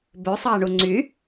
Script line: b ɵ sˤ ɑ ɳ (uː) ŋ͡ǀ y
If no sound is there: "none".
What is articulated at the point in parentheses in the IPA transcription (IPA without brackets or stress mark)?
u